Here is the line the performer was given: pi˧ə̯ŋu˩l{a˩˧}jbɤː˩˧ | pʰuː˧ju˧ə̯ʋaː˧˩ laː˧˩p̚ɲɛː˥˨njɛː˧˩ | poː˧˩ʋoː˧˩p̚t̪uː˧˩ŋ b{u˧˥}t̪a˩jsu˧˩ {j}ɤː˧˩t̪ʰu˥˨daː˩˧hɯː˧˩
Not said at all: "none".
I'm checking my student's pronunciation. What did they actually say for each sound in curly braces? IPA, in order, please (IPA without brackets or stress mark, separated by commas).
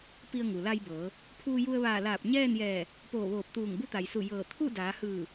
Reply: a˧, u˧˥, j